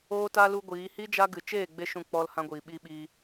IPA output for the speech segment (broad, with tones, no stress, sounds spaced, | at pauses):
oː˦ t a˦ l u˦ ɡʷ iː˨˦ h i˦ d͡ʒ a˦ ɡ ɨ˨ t͡ʃ eː˦˨ ɡ͡b e˦ ʃ ũ˧ k͡p ɔ˦ l h ã˦ ɡʷ iː˨ ɓ i˦ ɓ iː˧